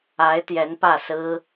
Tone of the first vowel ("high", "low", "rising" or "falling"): rising